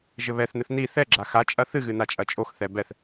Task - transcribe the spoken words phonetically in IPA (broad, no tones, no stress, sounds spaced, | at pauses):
ʒ ɘ β ɛ θ n ɘ θ n i θ ɛ ɡ͡ǁ a x a t͡ʃʼ ɐ θ ɨ ɣ ɨ n a t͡ʃʼ ɐ t͡ʃʼ o x θ ɛ b ɛ θ